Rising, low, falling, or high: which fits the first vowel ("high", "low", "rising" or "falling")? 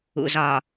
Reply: low